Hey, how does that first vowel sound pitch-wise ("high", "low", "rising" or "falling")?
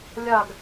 falling